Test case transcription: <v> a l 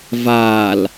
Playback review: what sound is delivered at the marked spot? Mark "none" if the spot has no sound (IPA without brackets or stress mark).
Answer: v